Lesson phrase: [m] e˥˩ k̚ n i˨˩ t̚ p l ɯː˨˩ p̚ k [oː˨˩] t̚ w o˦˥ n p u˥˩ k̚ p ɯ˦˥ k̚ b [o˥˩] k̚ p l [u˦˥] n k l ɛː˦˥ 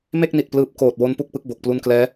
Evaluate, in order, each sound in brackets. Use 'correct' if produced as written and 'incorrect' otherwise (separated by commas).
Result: correct, correct, incorrect, correct